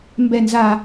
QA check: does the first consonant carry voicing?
yes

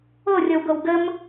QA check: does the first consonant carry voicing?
yes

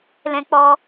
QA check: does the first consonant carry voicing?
yes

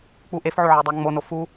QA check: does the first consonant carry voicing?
no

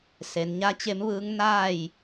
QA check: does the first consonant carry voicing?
no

